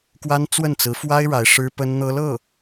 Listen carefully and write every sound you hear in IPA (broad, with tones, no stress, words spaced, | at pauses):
kwa˥n t͡swə˥˩nt͡sɹ̩˧˥fwa˥ɪ̯ ɻa˧˥ɪ̯ʂɻ̩˥pə˥nn̪ɤ˥ lɤ˥˩